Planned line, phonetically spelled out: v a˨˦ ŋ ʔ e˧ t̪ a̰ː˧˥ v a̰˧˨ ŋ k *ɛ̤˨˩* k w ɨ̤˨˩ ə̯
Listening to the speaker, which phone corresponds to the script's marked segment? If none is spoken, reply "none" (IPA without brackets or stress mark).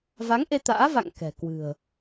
ɛ̤˨˩